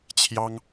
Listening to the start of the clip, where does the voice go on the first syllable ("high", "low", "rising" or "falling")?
high